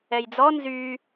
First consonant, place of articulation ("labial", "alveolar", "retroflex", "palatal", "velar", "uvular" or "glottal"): palatal